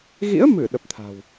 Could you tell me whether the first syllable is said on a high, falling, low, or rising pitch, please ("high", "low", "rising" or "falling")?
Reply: rising